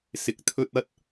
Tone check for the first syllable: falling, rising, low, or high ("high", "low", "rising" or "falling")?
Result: rising